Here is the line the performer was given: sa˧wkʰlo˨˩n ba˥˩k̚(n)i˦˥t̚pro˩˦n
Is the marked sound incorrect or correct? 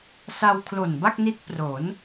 correct